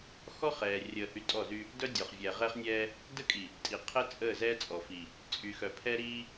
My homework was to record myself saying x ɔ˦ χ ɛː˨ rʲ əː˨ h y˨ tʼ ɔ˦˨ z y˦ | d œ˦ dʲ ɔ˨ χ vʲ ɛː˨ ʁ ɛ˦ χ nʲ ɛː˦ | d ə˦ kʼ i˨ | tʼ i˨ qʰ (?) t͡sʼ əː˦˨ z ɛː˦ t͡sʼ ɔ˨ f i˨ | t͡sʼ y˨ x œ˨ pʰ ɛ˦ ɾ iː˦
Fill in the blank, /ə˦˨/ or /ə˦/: ə˦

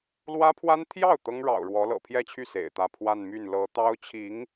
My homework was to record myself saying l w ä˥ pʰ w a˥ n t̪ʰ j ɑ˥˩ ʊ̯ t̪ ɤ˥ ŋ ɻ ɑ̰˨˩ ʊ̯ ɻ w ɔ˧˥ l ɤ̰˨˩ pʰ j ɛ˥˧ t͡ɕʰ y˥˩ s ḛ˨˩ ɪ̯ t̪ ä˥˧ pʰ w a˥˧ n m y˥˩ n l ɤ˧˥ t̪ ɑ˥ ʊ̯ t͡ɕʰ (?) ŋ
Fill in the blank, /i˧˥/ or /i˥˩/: i˧˥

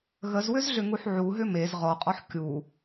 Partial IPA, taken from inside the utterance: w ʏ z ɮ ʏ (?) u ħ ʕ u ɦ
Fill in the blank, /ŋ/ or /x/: ŋ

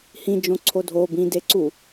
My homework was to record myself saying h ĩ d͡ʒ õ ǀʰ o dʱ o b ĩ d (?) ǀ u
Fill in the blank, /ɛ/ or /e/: e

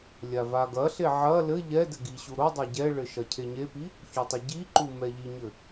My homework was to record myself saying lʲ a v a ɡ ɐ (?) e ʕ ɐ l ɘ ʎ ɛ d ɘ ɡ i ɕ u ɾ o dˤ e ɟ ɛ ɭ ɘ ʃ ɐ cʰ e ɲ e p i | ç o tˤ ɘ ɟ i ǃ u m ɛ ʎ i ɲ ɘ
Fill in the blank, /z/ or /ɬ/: ɬ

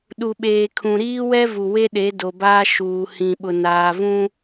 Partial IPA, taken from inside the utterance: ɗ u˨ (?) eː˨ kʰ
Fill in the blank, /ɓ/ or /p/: ɓ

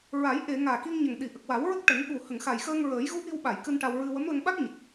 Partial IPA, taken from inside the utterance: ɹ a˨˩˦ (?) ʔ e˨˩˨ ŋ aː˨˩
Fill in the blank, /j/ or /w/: j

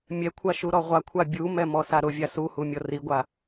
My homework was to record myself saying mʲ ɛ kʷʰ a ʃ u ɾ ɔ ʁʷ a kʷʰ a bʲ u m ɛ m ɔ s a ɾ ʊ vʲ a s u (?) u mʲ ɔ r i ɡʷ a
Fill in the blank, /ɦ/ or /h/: h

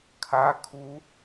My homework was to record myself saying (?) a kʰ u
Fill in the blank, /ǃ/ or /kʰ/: kʰ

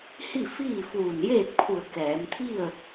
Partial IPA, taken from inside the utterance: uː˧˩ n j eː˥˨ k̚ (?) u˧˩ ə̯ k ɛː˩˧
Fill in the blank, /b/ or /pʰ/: pʰ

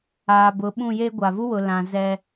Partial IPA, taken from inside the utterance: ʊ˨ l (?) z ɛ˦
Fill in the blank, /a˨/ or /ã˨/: ã˨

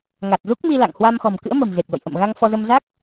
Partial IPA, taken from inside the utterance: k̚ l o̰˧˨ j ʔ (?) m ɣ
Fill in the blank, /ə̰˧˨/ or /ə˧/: ə̰˧˨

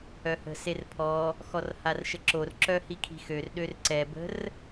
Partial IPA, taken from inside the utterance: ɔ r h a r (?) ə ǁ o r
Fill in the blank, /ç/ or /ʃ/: ʃ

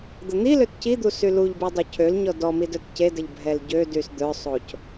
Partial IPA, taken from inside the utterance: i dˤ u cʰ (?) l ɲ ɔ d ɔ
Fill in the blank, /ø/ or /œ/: ø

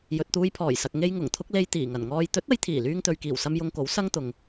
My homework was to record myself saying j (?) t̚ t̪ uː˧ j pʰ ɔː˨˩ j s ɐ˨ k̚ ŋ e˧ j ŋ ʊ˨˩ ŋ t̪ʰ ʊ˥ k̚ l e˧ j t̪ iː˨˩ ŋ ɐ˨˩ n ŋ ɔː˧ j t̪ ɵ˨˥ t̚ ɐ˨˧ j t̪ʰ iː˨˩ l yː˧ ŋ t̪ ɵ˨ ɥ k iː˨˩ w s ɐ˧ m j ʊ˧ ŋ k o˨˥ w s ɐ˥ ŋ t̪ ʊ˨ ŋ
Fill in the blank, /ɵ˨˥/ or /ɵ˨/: ɵ˨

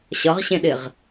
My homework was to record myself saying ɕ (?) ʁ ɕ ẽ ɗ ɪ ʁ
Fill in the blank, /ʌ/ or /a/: ʌ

